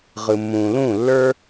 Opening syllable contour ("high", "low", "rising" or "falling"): low